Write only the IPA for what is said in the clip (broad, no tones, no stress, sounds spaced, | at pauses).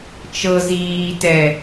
t͡ʃ ɤ z iː t ɛ